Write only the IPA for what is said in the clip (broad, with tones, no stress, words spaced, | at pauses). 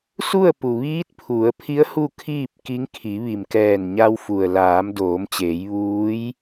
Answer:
su˥˨ə̯pu˩ ʋiː˧˥t̚pʰu˩˧ə̯pʰi˧˥ə̯ hu˥˨kʰiː˥˨p̚ki˧˥ŋ kʰi˩˧ʋi˩mkɛː˧˩nɲa˧w fu˩ə̯laː˩˧m doː˩˧mt͡ɕeː˩˧j ʋuː˧˥j